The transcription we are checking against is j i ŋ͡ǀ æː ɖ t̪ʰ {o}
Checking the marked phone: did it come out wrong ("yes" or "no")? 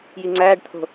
yes